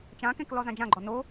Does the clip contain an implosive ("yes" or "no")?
no